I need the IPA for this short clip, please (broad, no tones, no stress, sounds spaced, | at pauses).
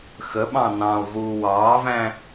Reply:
x ə ɓ ɑ̃ n ɑ̃ lˠ v uː w ɑː v æ̃